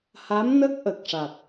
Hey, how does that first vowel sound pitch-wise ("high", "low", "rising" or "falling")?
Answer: rising